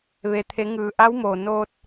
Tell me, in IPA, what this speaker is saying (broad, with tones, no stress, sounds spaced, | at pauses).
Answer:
ʋ e˩ t̪ʰ e˩˧ ŋ ɯː˩ ʔ a˧˥ w m oː˩ n oː˧ t̚